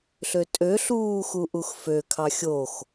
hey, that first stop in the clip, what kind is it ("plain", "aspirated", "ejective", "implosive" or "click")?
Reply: ejective